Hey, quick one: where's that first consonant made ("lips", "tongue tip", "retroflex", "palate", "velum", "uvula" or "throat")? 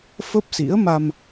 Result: lips